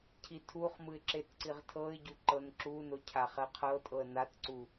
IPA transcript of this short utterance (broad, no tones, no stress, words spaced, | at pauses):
cʰitʰuχmɯɪ̯ ǁetǀiʁtʰɤɪ̯ɟu ǃɤnǁuno cʰaχɛqʰɤtʼɤə̯ natǀu